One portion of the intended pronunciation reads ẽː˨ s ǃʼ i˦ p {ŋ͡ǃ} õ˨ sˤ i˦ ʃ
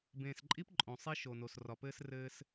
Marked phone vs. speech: incorrect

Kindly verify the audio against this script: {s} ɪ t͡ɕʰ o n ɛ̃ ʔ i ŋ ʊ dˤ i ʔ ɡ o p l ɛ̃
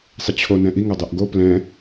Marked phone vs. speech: incorrect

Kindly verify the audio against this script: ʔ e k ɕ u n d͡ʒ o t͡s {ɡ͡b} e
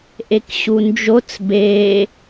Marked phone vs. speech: incorrect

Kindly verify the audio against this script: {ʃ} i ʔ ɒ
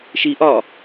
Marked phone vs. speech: correct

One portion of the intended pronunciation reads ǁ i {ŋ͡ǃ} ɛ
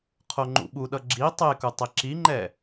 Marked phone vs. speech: correct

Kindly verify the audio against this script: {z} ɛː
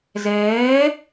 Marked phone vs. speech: correct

